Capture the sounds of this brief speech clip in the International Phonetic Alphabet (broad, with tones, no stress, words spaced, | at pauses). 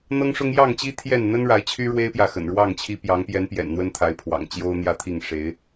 n̪ɤ˦ŋʂʊ˦ŋ jɑ˥˨ŋt͡ɕi˦ t̪ʰjɛ˥˨n n̪ə˦nɻa˨˦ɪ̯ t͡ɕʰy˦ɻwe˦ɪ̯pjä˨ xə̰˨˩nɻwɑ˥˨ŋt͡ɕʰi˦ pjɑ˨˦ŋpjɛ˨˦n pjɛ̰˨˩nn̪wə˦nt̪ʰa˨˦ɪ̯pʰwɑ̰˨˩ŋ t͡ɕjo˦ʊ̯n̪jä˥˨t̪ʰi˥˨ŋ ʂe˨˦ɪ̯